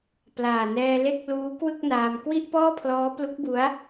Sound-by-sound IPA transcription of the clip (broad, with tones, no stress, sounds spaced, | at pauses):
p l aː˨˩ n ɛː˧ l e˦˥ k̚ l uː˦˥ k w ɯ˥˩ k̚ n aː˧ m k w i˥˩ ʔ p ɔː˥˩ pʰ l ɔː˦˥ p l u˦˥ k̚ b u˦˥ a̯